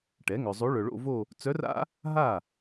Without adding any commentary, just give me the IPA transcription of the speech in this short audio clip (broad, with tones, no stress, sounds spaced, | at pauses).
ʈ ɛ˩˥ ŋ œ˨ zˤ o˧˥ ɭ œ˨ ɭ o̰˥˧ v o˥˧ | t͡s œ˧˥ r a̰˥ | ɦ a˥˩